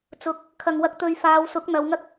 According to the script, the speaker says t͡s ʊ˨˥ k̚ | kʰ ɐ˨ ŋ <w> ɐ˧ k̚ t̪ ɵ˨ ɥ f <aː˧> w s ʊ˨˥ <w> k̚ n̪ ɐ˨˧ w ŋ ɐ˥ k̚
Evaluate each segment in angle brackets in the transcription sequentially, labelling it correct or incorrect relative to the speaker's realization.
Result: correct, incorrect, incorrect

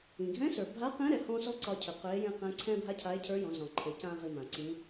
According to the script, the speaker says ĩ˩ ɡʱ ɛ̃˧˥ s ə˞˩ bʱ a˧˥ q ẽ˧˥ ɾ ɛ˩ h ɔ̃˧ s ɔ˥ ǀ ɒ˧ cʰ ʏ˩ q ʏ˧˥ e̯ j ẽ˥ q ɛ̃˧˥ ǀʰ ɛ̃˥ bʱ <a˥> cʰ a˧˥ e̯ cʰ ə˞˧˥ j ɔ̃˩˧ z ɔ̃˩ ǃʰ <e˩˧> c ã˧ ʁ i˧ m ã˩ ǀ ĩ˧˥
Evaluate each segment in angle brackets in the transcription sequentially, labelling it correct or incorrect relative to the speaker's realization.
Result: correct, correct

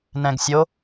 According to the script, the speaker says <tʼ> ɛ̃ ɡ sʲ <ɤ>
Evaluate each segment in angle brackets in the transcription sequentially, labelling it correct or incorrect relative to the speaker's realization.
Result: incorrect, incorrect

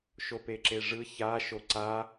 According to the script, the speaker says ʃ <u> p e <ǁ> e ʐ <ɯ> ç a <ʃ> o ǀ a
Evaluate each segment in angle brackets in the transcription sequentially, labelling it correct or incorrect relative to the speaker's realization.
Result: incorrect, correct, correct, correct

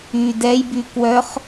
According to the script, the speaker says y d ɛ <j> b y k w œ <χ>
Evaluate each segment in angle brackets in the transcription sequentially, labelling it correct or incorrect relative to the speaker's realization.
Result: correct, correct

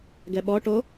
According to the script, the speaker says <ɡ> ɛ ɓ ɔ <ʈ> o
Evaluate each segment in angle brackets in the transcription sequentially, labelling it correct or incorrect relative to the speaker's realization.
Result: correct, correct

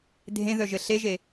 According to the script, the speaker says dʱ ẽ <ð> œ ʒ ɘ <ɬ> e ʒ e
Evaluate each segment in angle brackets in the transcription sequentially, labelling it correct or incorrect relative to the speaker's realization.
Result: correct, correct

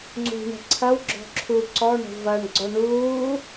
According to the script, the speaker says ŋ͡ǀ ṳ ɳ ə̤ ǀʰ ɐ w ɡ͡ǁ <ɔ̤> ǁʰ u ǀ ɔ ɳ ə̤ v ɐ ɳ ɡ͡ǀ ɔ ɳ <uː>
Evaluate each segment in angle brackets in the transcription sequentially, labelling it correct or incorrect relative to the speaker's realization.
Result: correct, correct

